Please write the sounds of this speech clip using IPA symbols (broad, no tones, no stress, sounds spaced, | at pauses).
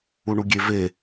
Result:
u ɳ u ɡʲ e v e